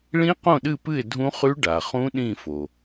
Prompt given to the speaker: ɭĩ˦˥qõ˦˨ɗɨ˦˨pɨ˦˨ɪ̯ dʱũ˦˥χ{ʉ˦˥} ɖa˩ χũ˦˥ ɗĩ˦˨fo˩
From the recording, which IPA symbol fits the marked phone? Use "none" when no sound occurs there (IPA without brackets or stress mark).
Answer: ʉ˦˥